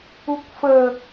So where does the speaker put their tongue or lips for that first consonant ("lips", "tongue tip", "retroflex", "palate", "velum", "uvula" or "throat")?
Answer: velum